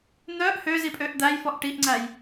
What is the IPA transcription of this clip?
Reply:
n̪œʔ høzipʼøʔ d̪æjfɔʔ ʈiʔŋ͡ǀæj

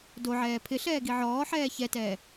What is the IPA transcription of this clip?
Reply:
doʕɛː pʰɪɬɛː ɡiʕɔːħɛː çɛtɛː

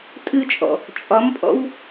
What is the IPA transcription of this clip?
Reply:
tʼɨt͡ʃʼɔ̰ | t͡ʃʼɒmpʼɔ̰w

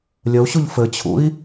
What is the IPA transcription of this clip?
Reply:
lʲəu̯ɕuʎ fɘt͡ɕʰṵi̯

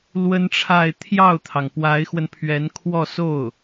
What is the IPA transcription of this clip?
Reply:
lwə˥nʈ͡ʂʰa˥˧ɪ̯ t̪ʰjɑ˥˩ʊ̯t̪ʰɑ˩ŋ pwa˧˥ɪ̯xwə˧npʰɥɛ˧˥n kʰwɔ˥˧so˥˩ʊ̯

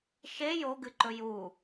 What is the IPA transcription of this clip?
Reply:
ʃe joɡɨǃɵ ju

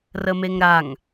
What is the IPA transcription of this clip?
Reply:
rəmeŋɾaŋ

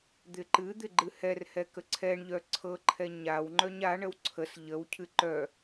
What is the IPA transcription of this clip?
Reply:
d̪ɪǃɨ d̪ɪɡ͡ǃɨhɛrhɛ kəǀʰɛɳʎœ ǀʰɤǃʰɛ ɲawŋ͡ǃœɲ aɳəw ǀʰəs ʎəw cʰɨǃœ

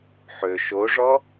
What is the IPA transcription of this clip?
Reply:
ħø ʃoʐɔ

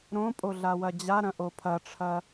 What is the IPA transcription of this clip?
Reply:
ɾõpʼo ɮawɐd͡ʑaɾɐ̃ ʔopʰɐʈ͡ʂʰɐ

